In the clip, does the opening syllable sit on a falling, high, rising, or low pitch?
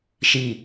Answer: falling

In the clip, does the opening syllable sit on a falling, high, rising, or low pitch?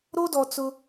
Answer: high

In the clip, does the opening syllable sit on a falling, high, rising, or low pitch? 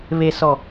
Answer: low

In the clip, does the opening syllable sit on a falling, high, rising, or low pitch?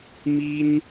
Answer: high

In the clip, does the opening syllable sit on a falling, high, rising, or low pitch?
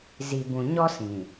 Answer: low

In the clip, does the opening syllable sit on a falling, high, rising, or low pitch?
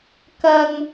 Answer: high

